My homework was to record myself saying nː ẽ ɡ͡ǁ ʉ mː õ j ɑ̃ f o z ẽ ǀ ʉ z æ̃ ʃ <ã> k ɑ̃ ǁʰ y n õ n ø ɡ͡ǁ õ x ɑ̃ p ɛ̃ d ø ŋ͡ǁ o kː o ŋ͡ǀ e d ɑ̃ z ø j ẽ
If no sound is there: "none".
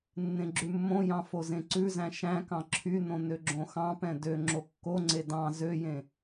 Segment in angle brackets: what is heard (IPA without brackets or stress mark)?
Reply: æ̃